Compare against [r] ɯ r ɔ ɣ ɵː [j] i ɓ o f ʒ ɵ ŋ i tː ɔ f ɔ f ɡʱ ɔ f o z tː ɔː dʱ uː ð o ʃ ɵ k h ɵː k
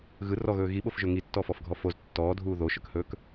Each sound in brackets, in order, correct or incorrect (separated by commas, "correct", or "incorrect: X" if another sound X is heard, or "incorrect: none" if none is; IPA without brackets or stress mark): incorrect: ɣ, incorrect: ɣ